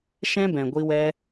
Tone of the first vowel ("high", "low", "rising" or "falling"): high